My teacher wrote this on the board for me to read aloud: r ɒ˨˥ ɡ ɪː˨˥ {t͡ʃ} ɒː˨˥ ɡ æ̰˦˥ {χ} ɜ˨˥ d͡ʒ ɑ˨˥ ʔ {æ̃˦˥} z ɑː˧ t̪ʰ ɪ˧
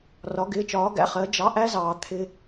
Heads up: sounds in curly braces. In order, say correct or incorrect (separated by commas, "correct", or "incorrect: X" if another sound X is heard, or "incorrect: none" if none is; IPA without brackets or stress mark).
correct, correct, incorrect: æ˦˥